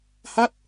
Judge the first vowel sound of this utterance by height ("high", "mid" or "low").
low